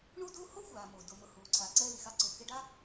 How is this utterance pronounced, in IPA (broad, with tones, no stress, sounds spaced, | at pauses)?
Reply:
ɳ u˥ d u˥ h o˥ xʷ aː˩ m o˩ d o˩ m ʊ˩ h uː˩ ǀʰ aː˩ ǀ ɛː˧ l i˩ x a˧ ǀ ʊ˩ k ɪ˧ ɖ a˥